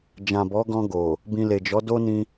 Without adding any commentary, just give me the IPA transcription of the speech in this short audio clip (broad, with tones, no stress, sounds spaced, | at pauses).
d͡ʒ ã˨ b ɔ˨˦ ɡ ɔ̃˧ ɡ o˨ | b ĩ˧ l e˨ d͡ʒ ɔ˨˦ d o˦ n ĩ˧